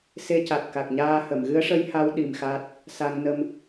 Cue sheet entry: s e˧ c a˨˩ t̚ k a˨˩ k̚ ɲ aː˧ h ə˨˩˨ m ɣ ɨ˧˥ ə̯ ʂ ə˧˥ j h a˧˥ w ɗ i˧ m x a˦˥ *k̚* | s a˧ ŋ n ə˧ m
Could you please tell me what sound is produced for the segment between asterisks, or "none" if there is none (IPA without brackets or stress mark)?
t̚